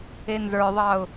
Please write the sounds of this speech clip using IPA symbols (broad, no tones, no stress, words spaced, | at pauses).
enzə˞ðˤɑʊ̯